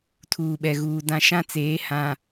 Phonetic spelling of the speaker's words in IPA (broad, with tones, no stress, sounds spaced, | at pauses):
tʰ uː˨ ɓ ɛ˨ ɣ uː˨ d ã˦ ʃ ã˦ t͡s eː˨˦ h ã˨